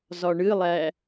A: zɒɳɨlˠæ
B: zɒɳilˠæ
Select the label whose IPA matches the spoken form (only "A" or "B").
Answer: A